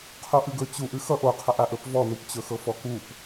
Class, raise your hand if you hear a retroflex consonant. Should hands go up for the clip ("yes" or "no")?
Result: no